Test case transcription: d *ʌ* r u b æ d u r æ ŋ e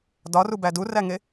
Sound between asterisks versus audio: incorrect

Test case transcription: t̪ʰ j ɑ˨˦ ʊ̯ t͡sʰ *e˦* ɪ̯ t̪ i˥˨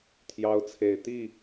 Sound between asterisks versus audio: incorrect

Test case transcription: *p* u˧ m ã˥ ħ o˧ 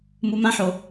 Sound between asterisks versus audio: incorrect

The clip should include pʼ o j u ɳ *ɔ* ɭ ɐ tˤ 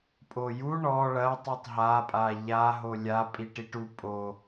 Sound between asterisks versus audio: correct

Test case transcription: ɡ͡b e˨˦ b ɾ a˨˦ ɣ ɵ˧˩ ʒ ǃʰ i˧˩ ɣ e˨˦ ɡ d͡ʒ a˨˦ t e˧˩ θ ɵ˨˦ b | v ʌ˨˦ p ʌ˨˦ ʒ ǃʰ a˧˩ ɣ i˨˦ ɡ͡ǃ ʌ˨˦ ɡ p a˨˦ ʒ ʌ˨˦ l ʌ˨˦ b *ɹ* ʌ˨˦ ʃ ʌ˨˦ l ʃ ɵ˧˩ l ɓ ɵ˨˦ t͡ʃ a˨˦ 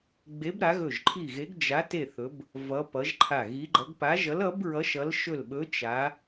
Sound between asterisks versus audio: correct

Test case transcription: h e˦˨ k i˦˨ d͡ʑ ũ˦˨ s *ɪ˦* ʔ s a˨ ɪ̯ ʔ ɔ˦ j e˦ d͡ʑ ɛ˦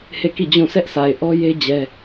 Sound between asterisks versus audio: incorrect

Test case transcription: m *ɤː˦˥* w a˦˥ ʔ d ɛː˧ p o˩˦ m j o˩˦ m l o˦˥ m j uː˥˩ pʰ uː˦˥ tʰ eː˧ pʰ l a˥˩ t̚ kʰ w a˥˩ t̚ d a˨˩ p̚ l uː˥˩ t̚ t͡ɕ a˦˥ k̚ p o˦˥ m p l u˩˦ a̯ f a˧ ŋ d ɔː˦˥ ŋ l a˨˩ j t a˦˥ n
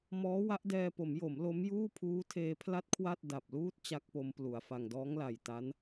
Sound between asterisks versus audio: incorrect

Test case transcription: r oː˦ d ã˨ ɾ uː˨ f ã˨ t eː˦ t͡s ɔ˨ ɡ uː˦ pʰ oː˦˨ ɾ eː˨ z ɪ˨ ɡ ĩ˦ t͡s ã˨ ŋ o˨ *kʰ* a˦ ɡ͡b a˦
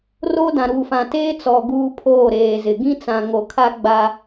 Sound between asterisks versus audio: correct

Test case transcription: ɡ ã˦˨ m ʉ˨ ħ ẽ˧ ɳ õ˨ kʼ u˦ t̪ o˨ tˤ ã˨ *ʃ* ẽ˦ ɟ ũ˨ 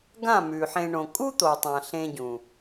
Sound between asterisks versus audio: incorrect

